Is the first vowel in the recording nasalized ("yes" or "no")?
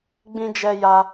yes